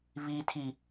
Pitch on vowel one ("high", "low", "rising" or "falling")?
high